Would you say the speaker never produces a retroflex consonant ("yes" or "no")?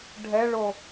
no